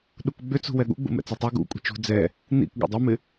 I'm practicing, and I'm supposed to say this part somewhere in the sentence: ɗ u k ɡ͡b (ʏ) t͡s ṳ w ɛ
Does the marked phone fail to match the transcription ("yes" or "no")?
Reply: no